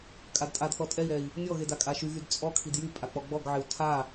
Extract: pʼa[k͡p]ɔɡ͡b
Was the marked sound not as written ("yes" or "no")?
no